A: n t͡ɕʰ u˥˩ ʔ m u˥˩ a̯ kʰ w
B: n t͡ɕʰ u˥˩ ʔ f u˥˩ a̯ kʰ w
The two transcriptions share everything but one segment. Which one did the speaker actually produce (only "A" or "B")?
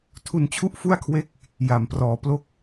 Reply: B